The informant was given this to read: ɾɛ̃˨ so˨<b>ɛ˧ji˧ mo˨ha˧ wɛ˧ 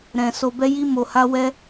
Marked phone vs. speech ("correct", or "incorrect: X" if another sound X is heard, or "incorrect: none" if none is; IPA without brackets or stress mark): correct